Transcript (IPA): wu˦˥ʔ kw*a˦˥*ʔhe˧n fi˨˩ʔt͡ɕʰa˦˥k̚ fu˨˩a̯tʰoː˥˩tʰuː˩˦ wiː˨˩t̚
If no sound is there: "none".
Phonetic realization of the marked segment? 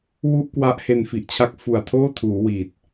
a˦˥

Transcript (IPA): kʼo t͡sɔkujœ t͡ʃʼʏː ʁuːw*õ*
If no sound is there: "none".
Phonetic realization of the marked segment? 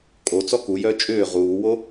o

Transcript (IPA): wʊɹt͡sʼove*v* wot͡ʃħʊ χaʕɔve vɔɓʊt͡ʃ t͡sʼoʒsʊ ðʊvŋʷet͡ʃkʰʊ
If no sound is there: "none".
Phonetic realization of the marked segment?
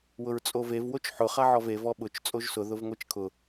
v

